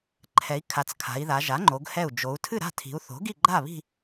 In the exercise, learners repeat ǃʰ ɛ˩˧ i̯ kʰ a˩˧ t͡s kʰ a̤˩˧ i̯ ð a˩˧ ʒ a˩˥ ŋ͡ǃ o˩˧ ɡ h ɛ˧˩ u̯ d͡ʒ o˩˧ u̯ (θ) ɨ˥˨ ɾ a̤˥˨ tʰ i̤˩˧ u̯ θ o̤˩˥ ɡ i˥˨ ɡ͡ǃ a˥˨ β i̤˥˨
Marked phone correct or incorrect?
incorrect